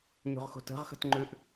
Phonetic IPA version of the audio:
ɲ o̤ ʁ x o̤ t ə̤ ʁ x ə̤ t ŋ͡ǃ ʉ ʔ

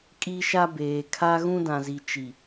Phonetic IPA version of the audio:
kʼ i˦ ʃ a˦ b eː˨ kʰ a˦ ɣ ũ˦ d ã˨ z i˨ t͡ʃ i˨

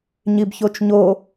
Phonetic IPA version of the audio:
ɲ i b ç o t͡ʃ ɲ o

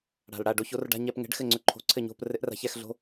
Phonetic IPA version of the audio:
ɽ a̤˨˩ l ɽ a˥˨ ɖ o˦˥ ç o˨˥ r ɖ a̤˧˥˧ ɲ ɛ˧˥˧ p ŋ ɛ̤˨˥ ɖ x ɘ˥˨ ŋ͡ǀ ʏ˦˥ ǃʰ o̤˧˥˧ ǀʰ ɘ˥˨ ɲ o̤˧˥˧ p r ɘ˦˥ ʔ r a̤˨˥ ç ɛ˧˥˧ x ɮ o̤˦˥

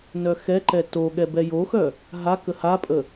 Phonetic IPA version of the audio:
n œ x ɛ ǃ ɛ t o ɠ ɛ b ɛ j o x œ | ɦ a k ə h a pʼ ə

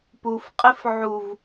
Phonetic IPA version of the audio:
p u f qʼ ɪ f ʕ u v

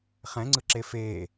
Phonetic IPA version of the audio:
χ ɛ̃ ŋ͡ǀ ɯ ǁ e f e

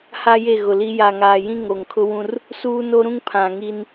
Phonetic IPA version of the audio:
h a˦ j e˦˨ ɣ ʊ˨ l i˦ j a˨ ŋ aː˨ j ĩ˦ ŋ o˨ ŋ kʰ ʊ˦ w ũ˦ r | s uː˦ n o˦ ɾ ũ˦ ŋ pʰ ã˨ ŋ i˦ n

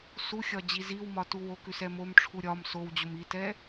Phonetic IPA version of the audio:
s u xʲ ɒ d͡ʑ i z i w m ɒ t u w o k ʉ s ɛ m o m ʈ͡ʂʰ u ɾʲ ɒ m s o w d͡ʑ o m i t ɛ

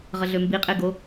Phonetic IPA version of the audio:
ʁ ə ɮ ø m b i qʼ e ɡ o

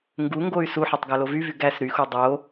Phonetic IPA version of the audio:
ŋ ɡ u ŋ ɡ o y̯ s u ħ e tˤ ɡ æ l o v y v y ɡ æ s ɾ y x u dˤ o

